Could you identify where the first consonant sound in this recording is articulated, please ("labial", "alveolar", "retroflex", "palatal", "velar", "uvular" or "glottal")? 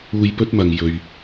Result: palatal